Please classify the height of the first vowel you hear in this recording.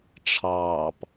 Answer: low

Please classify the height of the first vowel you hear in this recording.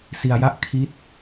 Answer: high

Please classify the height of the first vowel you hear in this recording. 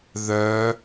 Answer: mid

